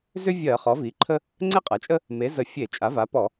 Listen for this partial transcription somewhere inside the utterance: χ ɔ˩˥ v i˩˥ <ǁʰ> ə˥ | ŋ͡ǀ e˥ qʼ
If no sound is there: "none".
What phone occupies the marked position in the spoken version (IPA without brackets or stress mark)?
ǃʰ